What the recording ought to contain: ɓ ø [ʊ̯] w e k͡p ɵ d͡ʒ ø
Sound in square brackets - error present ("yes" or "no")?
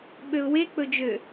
no